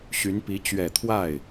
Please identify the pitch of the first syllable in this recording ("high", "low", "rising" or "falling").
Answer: rising